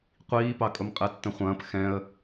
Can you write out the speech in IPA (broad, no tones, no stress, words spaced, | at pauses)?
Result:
qʷiːpɑkʼʊm qʼɛtːə̃χʷɐ̃ːp xɛ̃ə̯